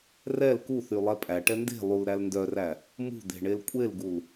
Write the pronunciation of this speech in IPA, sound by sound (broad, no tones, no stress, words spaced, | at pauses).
rɛl kuθylˠɛ pʼæʈɛ nde̤ lˠulɾæl ndœræ | mṳd̪e̤ɳel kʷʼelɡul